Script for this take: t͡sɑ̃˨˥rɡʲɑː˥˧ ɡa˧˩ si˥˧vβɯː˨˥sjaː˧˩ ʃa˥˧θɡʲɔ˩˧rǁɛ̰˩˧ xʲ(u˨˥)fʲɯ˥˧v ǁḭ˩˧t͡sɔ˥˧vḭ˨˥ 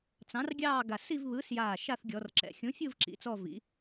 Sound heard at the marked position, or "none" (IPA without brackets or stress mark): ũ˨˥